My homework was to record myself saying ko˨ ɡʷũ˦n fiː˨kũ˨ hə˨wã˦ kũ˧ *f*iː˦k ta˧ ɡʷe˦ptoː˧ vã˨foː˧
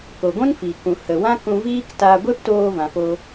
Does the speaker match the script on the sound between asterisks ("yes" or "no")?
no